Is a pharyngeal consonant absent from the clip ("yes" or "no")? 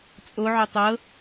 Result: no